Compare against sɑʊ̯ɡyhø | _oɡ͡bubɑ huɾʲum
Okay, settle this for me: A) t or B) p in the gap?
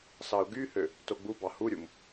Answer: A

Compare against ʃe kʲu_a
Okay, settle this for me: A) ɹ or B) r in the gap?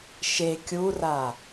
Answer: B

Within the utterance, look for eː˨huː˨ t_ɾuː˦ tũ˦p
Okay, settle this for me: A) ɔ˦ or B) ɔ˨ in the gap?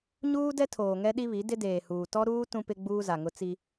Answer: A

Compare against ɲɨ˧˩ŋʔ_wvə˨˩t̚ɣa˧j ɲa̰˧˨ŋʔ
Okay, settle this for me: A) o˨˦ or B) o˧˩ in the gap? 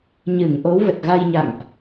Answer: A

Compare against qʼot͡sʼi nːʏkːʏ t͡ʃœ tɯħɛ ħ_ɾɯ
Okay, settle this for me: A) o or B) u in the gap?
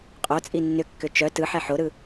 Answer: A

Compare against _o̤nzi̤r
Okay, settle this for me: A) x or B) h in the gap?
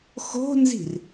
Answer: A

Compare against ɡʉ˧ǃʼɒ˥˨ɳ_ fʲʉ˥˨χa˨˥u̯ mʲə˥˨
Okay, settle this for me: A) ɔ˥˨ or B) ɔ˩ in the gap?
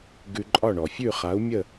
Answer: B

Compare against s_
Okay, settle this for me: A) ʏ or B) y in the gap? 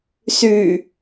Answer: B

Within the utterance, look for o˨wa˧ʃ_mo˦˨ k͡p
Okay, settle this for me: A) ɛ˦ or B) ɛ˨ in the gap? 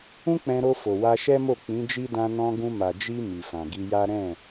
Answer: A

